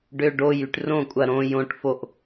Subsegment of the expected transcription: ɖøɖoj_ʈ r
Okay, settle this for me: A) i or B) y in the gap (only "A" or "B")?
B